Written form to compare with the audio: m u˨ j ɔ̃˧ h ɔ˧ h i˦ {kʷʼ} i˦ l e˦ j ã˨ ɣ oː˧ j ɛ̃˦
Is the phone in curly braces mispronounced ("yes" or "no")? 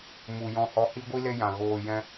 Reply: yes